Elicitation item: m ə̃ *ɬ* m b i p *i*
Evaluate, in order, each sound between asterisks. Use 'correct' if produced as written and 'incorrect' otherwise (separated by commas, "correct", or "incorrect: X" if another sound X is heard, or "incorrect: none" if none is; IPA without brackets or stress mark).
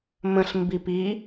correct, correct